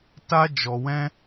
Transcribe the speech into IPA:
t a˦ d͡ʒ ɔ˧ w ɛ̃˦

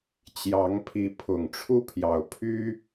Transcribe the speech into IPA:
t͡ɕ j ɑ˨˦ ŋ pʰ i˨˦ pʰ ʊ˨˩ ŋ ʈ͡ʂʰ u˦ pʰ j ɑ˨˩ ʊ̯ pʰ y˦

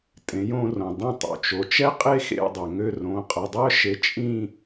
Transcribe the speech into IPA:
tʼ ẽ˩˥ j õ˦ r õ˩ dˤ ĩ˦˨ tˤ ṵ˩ t͡ʃ o˩˧ t͡ʃ ɛ˦ qʼ e˦ x ḛ˦˨ dˤ ø˩ ŋ ø˦˨ r õ˩˧˩ qʼ ɛ˩˧˩ dˤ œ˦ ʃ e˩˥ t͡ʃʼ ĩ˦˨

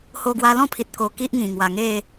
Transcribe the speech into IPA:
h o˧ ɡ w a˧ l ɔ̃˥˧ pʰ i˨ t̚ k o˧ k i˦ ʔ ŋ ĩ˨˩ ŋ w a˨˩ ŋ e˥˧

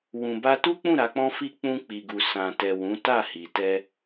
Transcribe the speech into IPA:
w ũ˨ b a˧ t u˦ k͡p ũ˦˨ ɾ a˨˦ k͡p ɔ̃˦ f i˦ k͡p ũ˧ k͡p i˨ ɡ u˨ s ã˨ t ɛ˨ w ũ˨˦ t a˦˨ h i˨ t ɛ˧

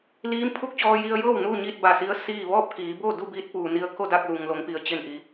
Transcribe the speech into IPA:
l iː˧˥ m pʰ u˥˨ k̚ t͡ɕ ɔː˧ j i˧ ə̯ j ɤː˥˨ w n uː˥˨ ɲ iː˥˨ t̚ b a˧˩ s i˧˥ ə̯ s iː˥˨ ʋ ɔː˥˨ p̚ k iː˩˧ b o˥˨ d u˥˨ b iː˧˥ t̚ p uː˩ n i˧ ə̯ k o˥˨ d a˥˨ k̚ l u˩ ŋ l o˩˧ ŋ p i˩ ə̯ t͡ɕ e˧˩ n ʔ i˩

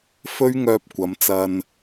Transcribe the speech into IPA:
f ɵ˥ ɥ ŋ œː˧ p̚ kʷ ɐ˨˧ m t͡s ɐ˧ n

